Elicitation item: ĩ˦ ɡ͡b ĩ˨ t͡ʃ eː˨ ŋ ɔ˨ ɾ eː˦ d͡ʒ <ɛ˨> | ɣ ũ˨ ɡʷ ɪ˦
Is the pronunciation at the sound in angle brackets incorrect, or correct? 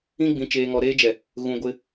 correct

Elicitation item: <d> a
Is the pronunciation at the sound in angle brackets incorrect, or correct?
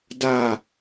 correct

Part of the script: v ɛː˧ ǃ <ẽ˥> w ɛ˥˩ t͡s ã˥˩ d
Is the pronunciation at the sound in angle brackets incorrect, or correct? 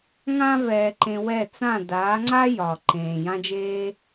incorrect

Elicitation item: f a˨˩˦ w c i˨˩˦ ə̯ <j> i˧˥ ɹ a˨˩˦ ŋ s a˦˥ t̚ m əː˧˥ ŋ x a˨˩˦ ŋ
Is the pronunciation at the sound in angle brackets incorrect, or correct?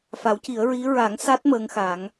incorrect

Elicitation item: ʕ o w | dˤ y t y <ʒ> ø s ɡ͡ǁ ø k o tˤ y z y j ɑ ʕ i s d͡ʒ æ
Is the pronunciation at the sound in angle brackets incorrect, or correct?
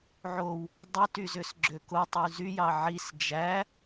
incorrect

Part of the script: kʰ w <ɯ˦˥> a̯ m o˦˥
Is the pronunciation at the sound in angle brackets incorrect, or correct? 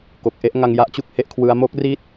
correct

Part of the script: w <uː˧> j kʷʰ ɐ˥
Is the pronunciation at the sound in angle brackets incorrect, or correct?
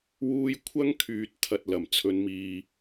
correct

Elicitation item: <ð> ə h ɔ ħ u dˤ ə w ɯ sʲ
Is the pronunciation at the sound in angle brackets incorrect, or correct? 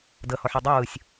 incorrect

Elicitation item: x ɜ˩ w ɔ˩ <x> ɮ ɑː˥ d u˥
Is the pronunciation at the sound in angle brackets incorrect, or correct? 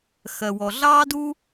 incorrect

